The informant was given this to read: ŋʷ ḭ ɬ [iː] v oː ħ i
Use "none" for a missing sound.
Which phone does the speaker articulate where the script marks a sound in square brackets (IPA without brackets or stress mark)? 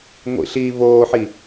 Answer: iː